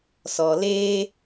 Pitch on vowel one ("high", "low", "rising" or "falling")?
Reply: low